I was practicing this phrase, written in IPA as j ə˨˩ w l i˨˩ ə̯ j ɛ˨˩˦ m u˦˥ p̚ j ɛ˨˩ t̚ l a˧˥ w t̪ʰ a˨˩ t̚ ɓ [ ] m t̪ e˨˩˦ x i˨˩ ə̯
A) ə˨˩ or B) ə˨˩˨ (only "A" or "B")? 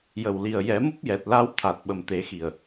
A